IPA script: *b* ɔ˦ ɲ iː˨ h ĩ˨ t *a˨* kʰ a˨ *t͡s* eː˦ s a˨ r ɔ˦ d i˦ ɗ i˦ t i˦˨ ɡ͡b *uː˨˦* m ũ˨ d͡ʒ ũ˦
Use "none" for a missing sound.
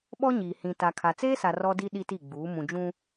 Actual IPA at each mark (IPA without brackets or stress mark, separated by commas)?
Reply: ɓ, a˨, t͡s, uː˨˦